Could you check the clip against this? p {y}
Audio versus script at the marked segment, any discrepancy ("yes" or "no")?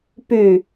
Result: no